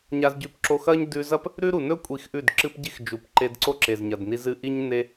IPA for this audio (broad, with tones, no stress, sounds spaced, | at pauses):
ɲ a˧ z ɟ ʉ˧ p ǁ o˧ x ɐ˦ ɲ d ʉ˧ z ɐ˦ p | ɾ ʉ˦ ɾ u˨ n ɵ˦ kʷʼ i˨˦ x ʔ ʉ˦˨ d ǁ ɨ˦ p ɟ i˦ x d͡ʒ u˨ p ǃ e˧ d ǀ o˦ ǁ e˨ z ɲ ɐ˨ d n i˧ z ɨ˦ ʔ i˦ ɲ n e˧